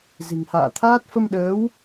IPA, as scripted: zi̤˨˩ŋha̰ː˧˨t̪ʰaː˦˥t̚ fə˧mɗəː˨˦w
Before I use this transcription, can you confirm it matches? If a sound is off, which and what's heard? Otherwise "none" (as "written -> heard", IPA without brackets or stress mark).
none